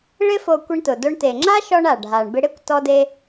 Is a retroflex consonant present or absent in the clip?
present